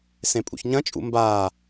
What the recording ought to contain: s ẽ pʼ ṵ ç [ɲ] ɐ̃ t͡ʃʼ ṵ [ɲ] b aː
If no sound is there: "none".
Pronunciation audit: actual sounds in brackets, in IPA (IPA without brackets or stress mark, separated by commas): ɲ, m